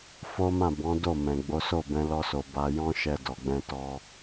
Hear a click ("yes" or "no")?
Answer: no